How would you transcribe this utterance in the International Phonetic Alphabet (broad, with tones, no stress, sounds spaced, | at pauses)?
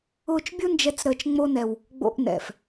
ʊː˧ t͡ʃ bʲ ʊ˦ n d͡ʒ ɛ˦ t͡s ɾ əː˧ t͡ʃ ŋ͡m o˦ n ɛ˧ w | ɡ͡b o̰˧ ʔ n ɛ̰˨ f